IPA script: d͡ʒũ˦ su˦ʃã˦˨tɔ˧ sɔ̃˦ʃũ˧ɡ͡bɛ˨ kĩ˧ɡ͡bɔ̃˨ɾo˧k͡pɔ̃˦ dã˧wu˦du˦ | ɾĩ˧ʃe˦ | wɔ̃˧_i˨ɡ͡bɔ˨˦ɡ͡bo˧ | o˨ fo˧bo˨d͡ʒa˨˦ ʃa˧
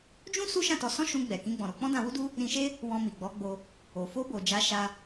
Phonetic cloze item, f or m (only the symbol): m